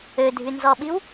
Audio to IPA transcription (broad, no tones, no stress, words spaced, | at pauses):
ødʱynzɔɓiw